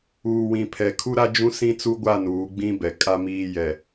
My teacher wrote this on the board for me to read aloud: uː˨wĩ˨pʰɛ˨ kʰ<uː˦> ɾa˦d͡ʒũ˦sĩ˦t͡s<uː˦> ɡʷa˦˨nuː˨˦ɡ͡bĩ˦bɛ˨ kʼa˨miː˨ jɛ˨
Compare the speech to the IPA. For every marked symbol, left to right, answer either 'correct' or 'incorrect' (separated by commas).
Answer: incorrect, incorrect